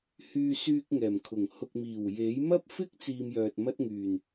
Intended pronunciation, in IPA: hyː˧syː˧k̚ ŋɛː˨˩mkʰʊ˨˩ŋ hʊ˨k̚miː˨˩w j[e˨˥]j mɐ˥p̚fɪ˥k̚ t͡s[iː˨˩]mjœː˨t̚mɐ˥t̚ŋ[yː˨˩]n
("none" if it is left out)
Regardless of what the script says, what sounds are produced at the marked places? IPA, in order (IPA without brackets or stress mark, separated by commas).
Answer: e˨˥, iː˧, yː˨˩